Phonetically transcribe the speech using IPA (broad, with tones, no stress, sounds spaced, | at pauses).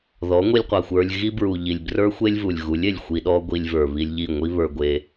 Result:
ð ɔ˨˦ ŋʷ i˧ lʲ qʷ a˨ xʷ ə˞˧ lʲ ɣ i˦ b ɹ u˨ ʎ i˨ lʲ b r ə˞˦ xʷ e˦ lʲ v u˨ lʲ ɣ u˨˦ lʲ e˨ lʲ xʷ i˧ ɗ ɔ˦ ɡʷ i˧ lʲ v ə˞˨ β i˧ lʲ ʎ i˦˨ ŋʷ i˦ β ə˞˧ ɡʷ e˧